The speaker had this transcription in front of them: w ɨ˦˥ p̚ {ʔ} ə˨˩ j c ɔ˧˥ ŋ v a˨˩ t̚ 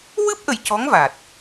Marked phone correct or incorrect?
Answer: correct